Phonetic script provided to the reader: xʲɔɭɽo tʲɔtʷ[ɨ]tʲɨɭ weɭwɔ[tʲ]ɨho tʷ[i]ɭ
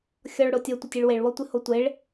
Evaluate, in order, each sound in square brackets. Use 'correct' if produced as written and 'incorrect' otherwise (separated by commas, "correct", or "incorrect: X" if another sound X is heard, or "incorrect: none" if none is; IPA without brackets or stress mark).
incorrect: ɪ, incorrect: tʷ, incorrect: e